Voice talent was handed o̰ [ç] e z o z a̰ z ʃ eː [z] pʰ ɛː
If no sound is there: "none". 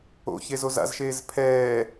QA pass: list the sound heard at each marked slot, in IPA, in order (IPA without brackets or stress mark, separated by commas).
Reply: ç, z